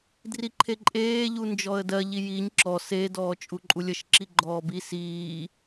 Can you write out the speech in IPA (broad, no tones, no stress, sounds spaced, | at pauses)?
d r i ǃʰ e ǃʼ eː ʎ u n d͡ʒ ɔ ə̯ d ɜ ʎ i j i ɲ ǁ ɔ s e d ɔː t͡ʃʼ u ǃʼ u lʲ ə ʃ ǁ i ɡ͡ǃ ɔː b i s iː